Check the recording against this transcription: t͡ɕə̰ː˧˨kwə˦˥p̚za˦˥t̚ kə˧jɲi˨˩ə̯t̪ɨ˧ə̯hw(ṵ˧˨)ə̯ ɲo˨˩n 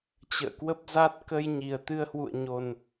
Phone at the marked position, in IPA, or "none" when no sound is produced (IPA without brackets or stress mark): ṵ˧˨